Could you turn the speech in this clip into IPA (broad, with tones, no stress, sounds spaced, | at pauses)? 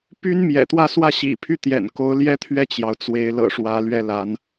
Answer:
p y˥ n m j ɛ̰˨˩ t̪ w ä˥˧ s w ä˥˩ ɕ ḭ˨˩ pʰ y˥˩ t̪ j ɛ̰˨˩ n k o˧˥ ʊ̯ l j ɛ˥ t̪ʰ ɥ ɛ˥˩ t͡ɕ j ɑ˩ ʊ̯ t͡s w e˧˥ ɪ̯ l ɤ̰˨˩ ʂ w ä˧˥ l ɥ ɛ˥ l a˧˥ n